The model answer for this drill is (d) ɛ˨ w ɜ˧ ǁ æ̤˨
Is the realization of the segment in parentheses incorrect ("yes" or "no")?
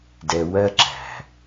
no